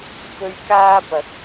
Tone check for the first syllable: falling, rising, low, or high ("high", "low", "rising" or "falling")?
low